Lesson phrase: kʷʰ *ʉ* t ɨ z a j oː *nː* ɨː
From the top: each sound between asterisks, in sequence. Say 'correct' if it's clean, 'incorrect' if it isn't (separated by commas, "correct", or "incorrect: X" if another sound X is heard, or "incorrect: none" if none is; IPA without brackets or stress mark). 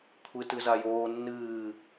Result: incorrect: ɨ, correct